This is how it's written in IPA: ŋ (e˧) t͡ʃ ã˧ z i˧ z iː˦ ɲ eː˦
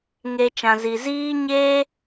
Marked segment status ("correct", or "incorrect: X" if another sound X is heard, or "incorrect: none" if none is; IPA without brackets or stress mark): correct